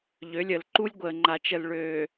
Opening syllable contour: rising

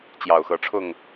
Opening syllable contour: low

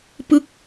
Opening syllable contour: falling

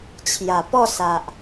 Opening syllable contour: low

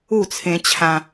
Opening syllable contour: falling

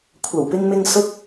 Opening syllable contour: low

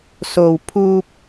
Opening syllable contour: low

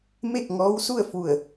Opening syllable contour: falling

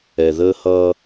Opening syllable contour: low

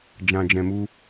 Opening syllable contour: low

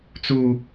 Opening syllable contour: high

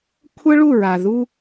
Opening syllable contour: high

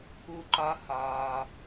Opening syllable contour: low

